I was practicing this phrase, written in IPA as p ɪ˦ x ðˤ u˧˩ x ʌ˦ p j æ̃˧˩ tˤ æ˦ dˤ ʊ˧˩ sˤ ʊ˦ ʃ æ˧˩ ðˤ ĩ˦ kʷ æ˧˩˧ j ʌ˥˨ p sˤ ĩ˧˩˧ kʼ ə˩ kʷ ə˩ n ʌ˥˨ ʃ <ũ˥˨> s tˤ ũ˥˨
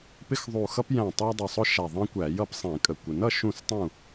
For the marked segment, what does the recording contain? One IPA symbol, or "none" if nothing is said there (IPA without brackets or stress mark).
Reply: ũ˥˨